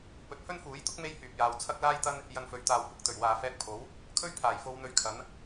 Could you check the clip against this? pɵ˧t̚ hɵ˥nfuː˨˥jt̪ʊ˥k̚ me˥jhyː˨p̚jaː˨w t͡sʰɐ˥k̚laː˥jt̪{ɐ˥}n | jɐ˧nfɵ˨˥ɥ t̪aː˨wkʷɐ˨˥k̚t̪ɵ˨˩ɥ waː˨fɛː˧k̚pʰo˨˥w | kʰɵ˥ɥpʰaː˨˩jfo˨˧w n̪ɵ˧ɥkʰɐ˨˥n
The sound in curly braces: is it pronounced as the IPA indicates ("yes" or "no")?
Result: yes